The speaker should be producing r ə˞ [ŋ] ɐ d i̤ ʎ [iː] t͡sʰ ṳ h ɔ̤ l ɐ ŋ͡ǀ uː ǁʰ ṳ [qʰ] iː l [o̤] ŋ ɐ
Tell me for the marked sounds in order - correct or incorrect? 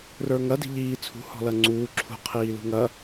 correct, correct, correct, incorrect

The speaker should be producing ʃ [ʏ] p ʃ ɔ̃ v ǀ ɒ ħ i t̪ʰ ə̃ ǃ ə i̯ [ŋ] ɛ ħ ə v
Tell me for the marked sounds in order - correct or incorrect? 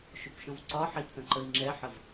correct, incorrect

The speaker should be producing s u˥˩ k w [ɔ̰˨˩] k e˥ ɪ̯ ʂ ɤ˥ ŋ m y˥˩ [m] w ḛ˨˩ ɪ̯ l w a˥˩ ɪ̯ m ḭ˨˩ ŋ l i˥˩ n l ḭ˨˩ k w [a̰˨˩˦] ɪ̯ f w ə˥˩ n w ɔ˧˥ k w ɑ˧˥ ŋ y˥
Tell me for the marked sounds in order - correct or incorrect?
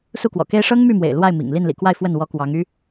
correct, correct, incorrect

